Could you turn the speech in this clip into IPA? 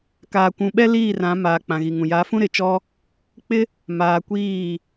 k aː˨ kʷ ũ˨ ɓ ɛ˦ l iː˦˨ r ã˨˦ m aː˨ k͡p ã˨ ɣ i˨ ŋ ũ˨ j a˨˦ f ũ˦ ɾ ɪ˨ t͡ʃ ɔ˦ | k͡p ɪ˦ | m aː˨ kʷ iː˦˨

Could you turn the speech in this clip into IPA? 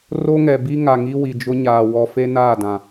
r o˦ ŋ ɛ˨ b i˦ ŋ a˨ ŋ i˦ w i˨ d͡ʒ ʊ˦ ɲ aː˨ w ɔ˨ f e˦ n aː˦˨ d ã˨

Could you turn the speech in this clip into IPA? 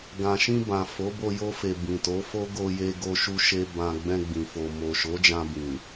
ɡ ã˨ ʃ ĩ˧ b ã˨ f o˨˦ b o˧ j o˧ f e˨ b ĩ˨ t o˨˦ f o˦ ɡ o˧ j e˧ ɡ o˧ ʃ u˧ ʃ e˧ b ã˧ ɡ͡b ɛ̃˧ ɡ͡b ĩ˨ f o˨ m o˨ ʃ o˨˦ d͡ʒ ã˧ b ĩ˨

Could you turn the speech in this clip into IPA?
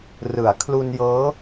r ɯ˩˦ a̯ kʰ l u˧ n j ɤː˦˥

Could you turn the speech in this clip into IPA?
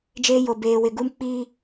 d͡ʒ eː˦ j o˨ b eː˨ w ɪ˨ ɡ u˦ m k͡p iː˦

